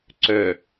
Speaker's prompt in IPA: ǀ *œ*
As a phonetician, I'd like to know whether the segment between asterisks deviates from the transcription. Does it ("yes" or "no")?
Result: no